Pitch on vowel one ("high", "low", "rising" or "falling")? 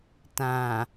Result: low